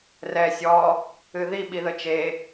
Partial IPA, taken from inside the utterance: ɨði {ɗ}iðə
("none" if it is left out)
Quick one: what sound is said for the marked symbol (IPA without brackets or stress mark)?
ɓ